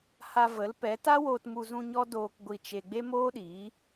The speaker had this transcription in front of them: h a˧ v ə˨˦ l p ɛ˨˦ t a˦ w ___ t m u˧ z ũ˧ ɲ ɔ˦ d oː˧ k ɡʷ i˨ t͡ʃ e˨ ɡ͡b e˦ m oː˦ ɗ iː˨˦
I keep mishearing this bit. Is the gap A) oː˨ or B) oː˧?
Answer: B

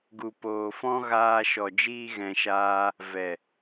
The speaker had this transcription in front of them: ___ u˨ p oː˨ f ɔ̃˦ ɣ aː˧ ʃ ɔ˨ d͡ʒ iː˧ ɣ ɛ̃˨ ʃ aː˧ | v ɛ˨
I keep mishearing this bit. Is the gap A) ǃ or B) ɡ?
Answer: B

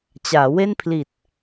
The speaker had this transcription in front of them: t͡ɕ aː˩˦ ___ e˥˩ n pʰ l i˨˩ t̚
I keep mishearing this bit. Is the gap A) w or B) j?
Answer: A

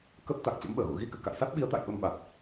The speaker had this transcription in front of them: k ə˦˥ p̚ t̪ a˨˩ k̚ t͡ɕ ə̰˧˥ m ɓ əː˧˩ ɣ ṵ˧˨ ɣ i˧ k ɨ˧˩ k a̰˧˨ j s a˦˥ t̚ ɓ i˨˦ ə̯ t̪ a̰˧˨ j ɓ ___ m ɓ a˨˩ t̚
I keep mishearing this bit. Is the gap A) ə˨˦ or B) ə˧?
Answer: B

